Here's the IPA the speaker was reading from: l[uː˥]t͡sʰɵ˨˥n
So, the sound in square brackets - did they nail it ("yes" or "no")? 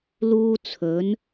yes